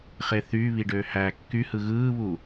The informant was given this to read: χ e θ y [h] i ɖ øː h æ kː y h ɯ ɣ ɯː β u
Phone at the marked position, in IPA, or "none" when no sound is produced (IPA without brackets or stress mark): β